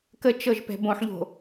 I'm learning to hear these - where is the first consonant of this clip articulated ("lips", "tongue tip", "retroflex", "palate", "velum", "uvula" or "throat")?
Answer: velum